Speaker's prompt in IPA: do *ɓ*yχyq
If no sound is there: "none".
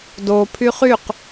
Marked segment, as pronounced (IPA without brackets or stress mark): pʰ